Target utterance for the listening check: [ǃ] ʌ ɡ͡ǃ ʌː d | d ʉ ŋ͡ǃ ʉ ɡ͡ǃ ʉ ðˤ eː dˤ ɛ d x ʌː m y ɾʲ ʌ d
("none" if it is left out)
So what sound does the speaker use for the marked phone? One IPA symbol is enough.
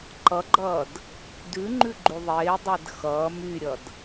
ǃ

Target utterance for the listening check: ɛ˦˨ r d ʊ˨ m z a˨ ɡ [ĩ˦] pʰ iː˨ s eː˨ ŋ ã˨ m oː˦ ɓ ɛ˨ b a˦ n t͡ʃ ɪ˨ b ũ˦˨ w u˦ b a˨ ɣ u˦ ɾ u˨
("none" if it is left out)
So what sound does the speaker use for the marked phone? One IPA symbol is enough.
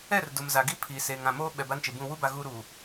i˦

